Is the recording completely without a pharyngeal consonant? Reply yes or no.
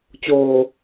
yes